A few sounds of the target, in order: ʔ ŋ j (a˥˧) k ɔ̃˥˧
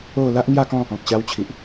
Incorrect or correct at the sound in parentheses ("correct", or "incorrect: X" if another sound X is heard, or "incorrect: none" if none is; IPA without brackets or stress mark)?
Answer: correct